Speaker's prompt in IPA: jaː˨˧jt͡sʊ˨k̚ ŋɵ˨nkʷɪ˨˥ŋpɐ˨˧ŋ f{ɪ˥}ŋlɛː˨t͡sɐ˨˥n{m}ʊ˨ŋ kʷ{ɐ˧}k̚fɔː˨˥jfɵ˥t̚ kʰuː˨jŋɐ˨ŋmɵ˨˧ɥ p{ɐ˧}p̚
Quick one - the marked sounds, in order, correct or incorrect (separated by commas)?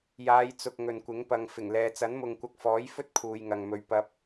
incorrect, correct, correct, correct